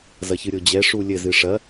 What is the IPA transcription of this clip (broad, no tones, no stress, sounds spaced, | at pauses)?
z ɐ ç ɨ ɾʲ o d͡ʑ ɛ ʂ u lʲ ɘ z ɨ ʂ ɐ